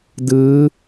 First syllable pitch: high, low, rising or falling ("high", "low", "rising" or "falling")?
rising